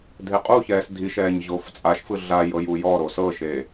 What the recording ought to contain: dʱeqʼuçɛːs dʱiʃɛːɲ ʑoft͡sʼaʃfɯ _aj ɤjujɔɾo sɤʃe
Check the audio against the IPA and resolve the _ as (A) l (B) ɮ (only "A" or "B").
B